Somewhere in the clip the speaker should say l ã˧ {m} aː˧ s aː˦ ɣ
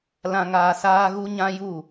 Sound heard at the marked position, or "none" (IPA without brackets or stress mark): ŋ